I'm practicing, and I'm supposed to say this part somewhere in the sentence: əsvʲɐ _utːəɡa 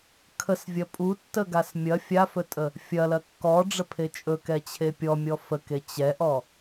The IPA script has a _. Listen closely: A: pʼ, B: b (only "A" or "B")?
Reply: A